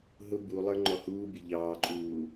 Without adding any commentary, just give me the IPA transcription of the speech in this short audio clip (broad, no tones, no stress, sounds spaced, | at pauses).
ɦ ʊ b u lˠ ə˞ ŋ͡ǃ ɔ h uː bʲ ə ʎ ɑː ǃʼ uː